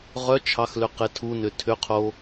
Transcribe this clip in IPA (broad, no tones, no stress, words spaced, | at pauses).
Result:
ʁœ t͡ʃʰɑxlʏ qetʰunʏ tʰʏqʰo